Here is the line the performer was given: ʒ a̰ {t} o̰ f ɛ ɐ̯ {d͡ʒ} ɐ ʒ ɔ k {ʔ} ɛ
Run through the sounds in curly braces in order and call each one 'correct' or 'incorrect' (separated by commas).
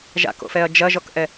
incorrect, correct, correct